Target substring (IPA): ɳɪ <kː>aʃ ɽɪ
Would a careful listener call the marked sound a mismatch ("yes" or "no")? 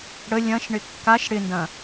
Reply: no